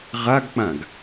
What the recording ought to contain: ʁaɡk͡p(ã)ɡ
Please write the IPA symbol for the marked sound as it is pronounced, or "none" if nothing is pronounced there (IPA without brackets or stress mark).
ã